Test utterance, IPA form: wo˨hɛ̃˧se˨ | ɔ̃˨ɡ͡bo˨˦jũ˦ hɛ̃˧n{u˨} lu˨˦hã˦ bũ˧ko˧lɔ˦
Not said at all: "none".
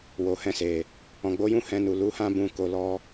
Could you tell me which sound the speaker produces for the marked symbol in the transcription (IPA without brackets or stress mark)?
u˨